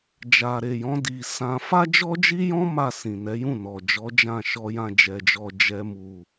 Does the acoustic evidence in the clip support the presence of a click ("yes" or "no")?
no